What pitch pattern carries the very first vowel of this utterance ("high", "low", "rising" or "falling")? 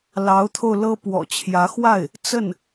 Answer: rising